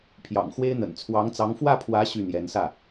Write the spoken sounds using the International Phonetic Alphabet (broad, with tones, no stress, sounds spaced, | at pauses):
pʰ j ɑ̰˨˩ ŋ x w e˥ ɪ̯ n̪ ə̰˨˩ n t͡sʰ w ɑ˧˥ ŋ t͡s ɑ˧˥ ŋ f w ä˥˩ pʰ w ä˧˥ ɕ y˥˩ n̪ j ɛ˧˥ n s ä˥˩